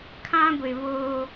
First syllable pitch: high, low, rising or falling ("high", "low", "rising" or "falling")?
high